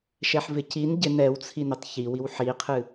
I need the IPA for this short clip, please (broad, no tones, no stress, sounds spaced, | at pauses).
ʃ ɛ ħ v ɪ c i n ɟ ɪ n ɛ w t͡sʰ i n ɪ tˤ ç i w i w ħ i qʰ ɨ